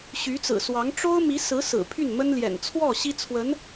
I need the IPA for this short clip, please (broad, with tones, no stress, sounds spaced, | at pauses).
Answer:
ɕ y˧˥ t͡s ɹ̩˨˩ s w ɑ˧˥ ŋ ʈ͡ʂ o˥ ʊ̯ m i˧˥ s ɹ̩˧˥ s ɹ̩˨˩ pʰ y˥˩ n m ə˥ n l j ɛ̰˨˩ n t͡sʰ w ɔ˥˩ ɕ i˥ t͡sʰ w ə˧˥ n